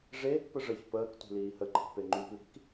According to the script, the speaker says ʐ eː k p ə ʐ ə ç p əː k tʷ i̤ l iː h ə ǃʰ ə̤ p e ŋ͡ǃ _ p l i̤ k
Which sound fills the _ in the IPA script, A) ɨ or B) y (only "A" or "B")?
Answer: B